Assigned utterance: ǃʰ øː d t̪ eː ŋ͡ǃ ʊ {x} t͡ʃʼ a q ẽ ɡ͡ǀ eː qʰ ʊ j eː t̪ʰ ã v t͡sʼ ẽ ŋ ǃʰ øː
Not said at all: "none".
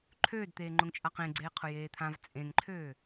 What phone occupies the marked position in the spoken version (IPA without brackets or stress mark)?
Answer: ŋ